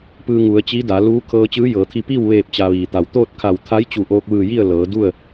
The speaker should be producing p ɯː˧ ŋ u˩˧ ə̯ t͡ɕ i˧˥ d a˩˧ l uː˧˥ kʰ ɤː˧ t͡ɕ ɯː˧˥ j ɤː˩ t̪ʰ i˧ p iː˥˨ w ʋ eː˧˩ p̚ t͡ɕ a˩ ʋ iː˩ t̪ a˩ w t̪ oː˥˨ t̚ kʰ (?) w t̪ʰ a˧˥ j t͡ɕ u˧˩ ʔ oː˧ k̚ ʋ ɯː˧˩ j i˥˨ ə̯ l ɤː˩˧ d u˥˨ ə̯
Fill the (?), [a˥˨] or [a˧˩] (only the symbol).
a˧˩